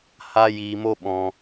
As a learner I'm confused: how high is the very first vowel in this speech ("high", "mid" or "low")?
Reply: low